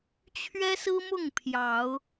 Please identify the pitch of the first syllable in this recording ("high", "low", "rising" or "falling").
high